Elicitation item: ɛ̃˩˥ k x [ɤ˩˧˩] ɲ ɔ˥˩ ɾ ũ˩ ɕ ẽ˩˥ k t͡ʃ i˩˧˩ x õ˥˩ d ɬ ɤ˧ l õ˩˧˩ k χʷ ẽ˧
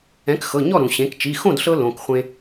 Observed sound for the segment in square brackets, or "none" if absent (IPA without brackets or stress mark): ɤ˩˧˩